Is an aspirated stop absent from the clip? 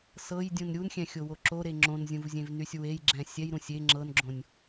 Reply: yes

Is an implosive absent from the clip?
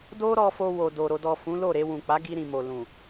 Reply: yes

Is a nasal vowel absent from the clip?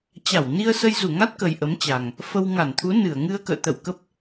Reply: yes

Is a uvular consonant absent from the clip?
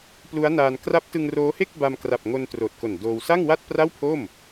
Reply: yes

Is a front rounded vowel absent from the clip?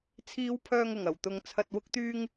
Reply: no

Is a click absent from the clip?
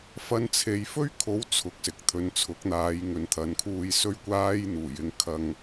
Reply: yes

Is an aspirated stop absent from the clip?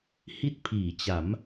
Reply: no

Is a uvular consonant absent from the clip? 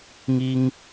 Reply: yes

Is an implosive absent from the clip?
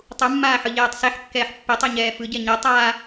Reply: yes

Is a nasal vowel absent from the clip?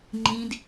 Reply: no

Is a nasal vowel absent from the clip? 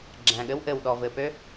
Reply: no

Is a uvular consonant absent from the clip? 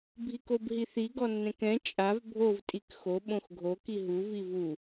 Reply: yes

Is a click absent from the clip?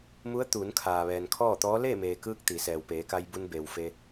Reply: yes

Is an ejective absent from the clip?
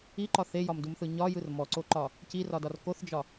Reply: yes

